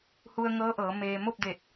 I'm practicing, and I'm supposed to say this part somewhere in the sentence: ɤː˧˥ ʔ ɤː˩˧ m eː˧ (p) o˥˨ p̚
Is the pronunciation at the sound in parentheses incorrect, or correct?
incorrect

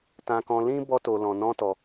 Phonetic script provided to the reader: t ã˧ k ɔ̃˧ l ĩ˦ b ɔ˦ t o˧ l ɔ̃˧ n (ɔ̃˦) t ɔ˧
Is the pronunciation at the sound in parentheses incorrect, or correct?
correct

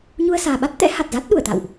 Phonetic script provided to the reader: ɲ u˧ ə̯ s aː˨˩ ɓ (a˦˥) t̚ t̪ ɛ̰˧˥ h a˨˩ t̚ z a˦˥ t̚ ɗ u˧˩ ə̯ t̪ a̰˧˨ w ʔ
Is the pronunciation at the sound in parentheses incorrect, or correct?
correct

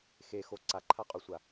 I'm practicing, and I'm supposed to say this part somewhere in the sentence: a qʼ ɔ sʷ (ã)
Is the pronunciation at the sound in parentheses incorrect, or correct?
incorrect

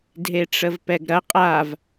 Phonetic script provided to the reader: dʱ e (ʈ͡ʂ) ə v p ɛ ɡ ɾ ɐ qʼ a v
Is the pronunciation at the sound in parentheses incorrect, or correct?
correct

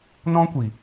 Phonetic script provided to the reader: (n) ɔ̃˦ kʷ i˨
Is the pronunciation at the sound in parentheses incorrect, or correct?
correct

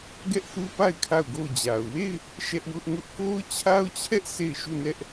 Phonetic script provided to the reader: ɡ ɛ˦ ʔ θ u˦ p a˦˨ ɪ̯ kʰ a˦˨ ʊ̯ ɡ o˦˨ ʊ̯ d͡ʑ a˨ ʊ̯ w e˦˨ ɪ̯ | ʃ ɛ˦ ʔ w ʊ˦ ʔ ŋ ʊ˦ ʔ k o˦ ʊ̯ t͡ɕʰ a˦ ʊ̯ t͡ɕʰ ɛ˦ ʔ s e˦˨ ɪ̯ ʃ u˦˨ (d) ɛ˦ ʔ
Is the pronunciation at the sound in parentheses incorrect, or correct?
incorrect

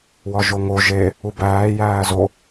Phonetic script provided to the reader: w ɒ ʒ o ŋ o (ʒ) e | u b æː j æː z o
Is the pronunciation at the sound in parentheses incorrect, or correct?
correct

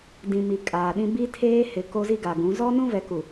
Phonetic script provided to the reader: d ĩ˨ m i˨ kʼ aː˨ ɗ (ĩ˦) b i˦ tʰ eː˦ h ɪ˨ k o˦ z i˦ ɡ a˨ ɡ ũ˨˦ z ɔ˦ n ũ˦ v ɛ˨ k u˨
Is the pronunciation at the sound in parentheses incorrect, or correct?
correct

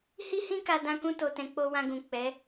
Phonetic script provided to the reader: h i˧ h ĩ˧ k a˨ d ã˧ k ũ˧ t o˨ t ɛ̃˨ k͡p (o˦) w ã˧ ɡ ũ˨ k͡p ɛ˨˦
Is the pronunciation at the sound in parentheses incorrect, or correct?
incorrect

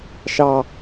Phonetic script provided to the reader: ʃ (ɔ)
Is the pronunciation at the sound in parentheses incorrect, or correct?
incorrect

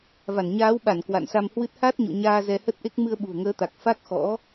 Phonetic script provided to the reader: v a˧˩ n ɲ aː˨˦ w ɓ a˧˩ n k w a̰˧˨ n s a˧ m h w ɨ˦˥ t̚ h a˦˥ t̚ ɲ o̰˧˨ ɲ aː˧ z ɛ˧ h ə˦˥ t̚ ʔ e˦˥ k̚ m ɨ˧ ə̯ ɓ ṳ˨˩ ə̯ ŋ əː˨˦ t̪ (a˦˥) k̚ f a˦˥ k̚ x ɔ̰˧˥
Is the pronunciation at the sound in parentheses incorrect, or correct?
incorrect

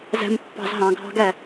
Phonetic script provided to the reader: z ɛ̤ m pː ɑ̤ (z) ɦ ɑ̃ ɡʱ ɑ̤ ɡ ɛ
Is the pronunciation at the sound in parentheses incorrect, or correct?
correct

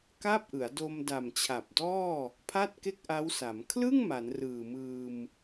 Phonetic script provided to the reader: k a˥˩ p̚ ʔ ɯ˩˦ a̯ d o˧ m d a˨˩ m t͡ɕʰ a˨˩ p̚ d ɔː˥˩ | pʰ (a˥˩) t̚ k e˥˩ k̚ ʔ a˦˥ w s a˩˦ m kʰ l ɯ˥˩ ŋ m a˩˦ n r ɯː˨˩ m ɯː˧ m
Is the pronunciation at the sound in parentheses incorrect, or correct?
correct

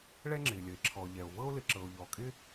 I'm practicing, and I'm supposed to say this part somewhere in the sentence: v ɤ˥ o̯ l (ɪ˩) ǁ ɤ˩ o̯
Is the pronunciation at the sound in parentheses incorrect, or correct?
correct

